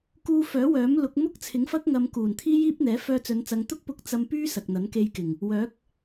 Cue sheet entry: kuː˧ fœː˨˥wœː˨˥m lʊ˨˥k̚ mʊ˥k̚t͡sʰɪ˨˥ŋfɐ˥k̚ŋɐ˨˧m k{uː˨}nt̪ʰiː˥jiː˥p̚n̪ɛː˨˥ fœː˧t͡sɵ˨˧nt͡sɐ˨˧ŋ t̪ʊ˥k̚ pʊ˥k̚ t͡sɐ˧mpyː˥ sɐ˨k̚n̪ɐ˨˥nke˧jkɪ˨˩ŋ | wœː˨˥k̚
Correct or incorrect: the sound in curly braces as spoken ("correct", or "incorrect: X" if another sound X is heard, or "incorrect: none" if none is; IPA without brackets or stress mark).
incorrect: uː˨˩